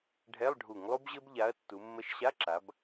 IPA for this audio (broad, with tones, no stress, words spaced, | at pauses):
ɖʱɛ˧˥˧lˠ ɖʱu˧˩˧ŋlˠu˥bʑɘ˥b ʎa˨˥ɐ̯tːu˩˧mːə˧˥˧ʃ ɕa˧˥˧ǁa˩˧b